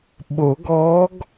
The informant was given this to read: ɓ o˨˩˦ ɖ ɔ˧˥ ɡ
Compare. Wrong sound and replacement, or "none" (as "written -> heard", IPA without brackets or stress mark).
ɖ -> ɡ